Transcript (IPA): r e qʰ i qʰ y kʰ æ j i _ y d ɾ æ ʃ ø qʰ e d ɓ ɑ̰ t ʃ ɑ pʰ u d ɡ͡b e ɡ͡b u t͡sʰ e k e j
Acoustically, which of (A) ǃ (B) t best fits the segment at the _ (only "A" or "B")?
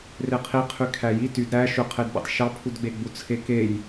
B